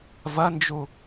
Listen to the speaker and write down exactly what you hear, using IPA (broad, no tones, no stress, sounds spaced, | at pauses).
v ɐ n d͡ʒ u